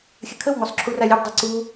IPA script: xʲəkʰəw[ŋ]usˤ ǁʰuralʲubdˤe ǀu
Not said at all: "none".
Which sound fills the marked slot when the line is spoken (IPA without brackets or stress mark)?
ŋ